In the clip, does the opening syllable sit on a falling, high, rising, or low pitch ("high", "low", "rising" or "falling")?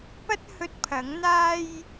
high